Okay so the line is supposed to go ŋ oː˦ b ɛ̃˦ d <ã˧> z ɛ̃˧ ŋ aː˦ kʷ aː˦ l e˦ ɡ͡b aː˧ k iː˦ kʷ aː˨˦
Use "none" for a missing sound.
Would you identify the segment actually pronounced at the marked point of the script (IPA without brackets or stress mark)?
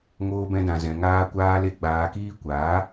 ã˧